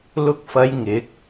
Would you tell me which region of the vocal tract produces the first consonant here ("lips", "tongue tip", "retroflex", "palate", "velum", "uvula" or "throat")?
tongue tip